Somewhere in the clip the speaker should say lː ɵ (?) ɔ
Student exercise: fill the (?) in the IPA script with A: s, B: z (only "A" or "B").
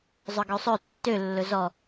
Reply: B